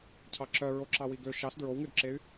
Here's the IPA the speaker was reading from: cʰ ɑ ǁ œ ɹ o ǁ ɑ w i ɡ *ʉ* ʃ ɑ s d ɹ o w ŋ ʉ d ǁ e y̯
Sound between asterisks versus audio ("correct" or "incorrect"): incorrect